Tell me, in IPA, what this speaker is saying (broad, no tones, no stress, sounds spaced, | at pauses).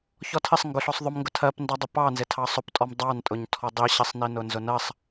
ç ɔ tʰ ɪ sˤ ŋ ɡ ʊ ɬ ɔ sˤ ðˤ ʊ m ŋ ɡ ʊ tʰ ɜ p n d ɑ dˤ ʊ p ɑ n z ɪ tʰ ɑ sˤ ʊ p tʼ ɔ m dˤ ɑ n tʼ ʊ ɲ tʰ ɔ dˤ i ɕ ɪ sˤ n i n ʊ n z ʊ n ɜ sˤ